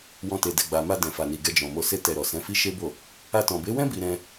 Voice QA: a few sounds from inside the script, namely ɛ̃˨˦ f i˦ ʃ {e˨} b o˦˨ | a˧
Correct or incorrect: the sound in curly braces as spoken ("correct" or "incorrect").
incorrect